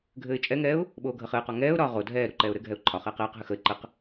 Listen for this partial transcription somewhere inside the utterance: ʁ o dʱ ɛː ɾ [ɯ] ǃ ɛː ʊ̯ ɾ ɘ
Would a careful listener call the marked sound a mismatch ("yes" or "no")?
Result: yes